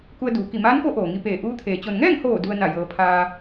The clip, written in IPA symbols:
k u˧ ə̯ d uː˩ k i˧˩ m aː˧˥ n k o˧˥ ʔ oː˩ ŋ i˧ p eː˧˩ ʔ uː˧˥ t̪ʰ eː˩˧ t͡ɕ o˩ n ŋ ɛː˥˨ ŋ h oː˧˩ d u˧ ə̯ n a˧˩ j ɤː˩˧ pʰ aː˧

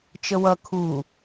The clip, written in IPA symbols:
t͡ʃ ə w ʌ kʰ u

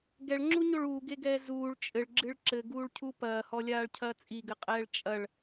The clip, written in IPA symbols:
ɡ ɛ ɭ ŋ͡ǁ u ɲ o ɭ uː ɡ e ɡ ɛː z uː ɭ t͡ʃʼ ɘ ɭ ɡ͡ǁ ɨ ɭ ǁ ɘ ɡ uː ɭ cʰ u p ɐː h ɔ lʲ aː ɭ cʰ ɐː t͡sʼ i ɡ ɘ qʼ ɛː ɭ t͡ʃʼ ɐ ɭ

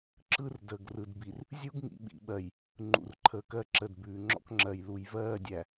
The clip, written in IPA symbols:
ǁ ɯ˦ r d əː˨ ɡ r ɯ˨ d b i˨ r | zʲ u˦ ɡ ŋ ḭ˨ ɓ ḭ˨ ɓ ɜ˨ j | ŋ͡ǃ ṵ˨ r ǃʰ əː˨ k ɜ˦ ǁ ə˨ d b ʉː˨ ŋ͡ǁ ɔ̰˦ k ŋ͡ǁ ɜ˨ j l u˨ j v ɜː˦˨ dʲ æ˨

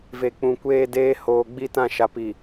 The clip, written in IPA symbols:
v e˨ k͡p ũ˨ kʷ eː˦ d eː˦ h oː˨ ɡ͡b i˦ t ã˦˨ ʃ a˨ p i˨

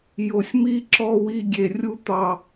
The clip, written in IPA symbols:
j o˨ sʲ m i˦ ǁ ɔ˦ w i˦ ɡʲ e˨ rʲ u˦ t̪ ɑ˨

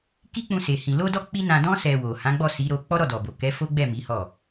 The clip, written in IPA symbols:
k i˦ k͡p ũ˧ s e˨ h ĩ˨ l o˧ d ɔ˧ k͡p i˦ n ã˧ d ɔ̃˦ s ɛ˧ w o˨ h ã˨˦ ɡ͡b ɔ˦˨ s i˨˦ ɾ o˧ k͡p ɔ˦ ɾ ɔ˦˨ d ɔ˨ b o˨ k ɛ˨˦ f o˦ ɡ͡b ɛ˦˨ m i˨˦ h ɔ˦˨

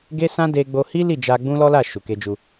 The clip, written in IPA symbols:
ɡ e˦ s ã˦ d e˦ ɡ͡b o˧ h i˦ l i˦˨ d͡ʒ a˧ ɡ͡b ũ˦ l ɔ˦ l a˦˨ ʃ u˨ k e˧ d͡ʒ u˧

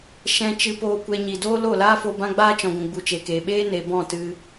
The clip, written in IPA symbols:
ʃ ɛ̃˧ t͡ʃ ɨ˧ p oː˧ kʷ ɛ˧ ɲ i˨ d oː˦ l o˦˨ l aː˦ f o˧ b ã˦ ɡ͡b aː˦ t͡ʃ ɔ̃˨ ɡʷ ũ˨ ɡ͡b u˨ t͡ʃ e˨ k eː˨ ɓ eː˦ n e˨ b ɔ̃˦˨ t ɨ˧

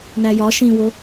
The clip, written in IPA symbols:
n æ j ɒ ʃ ĩ w o

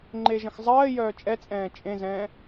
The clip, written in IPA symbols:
ŋ͡ǃ e ʒ ə̃ x zˤ ɜː j œː t͡ʃʼ ɛ t͡sʼ ɛ̃ː t͡ʃʼ ẽ z ɛ̃ː

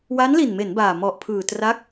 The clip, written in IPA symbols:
w aː˦˥ n l i˨˩ n m e˩˦ n b aː˨˩ m ɔ˨˩ ʔ pʰ ɯː˨˩ t r a˦˥ k̚

